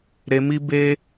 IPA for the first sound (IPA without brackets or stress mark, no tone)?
ɾ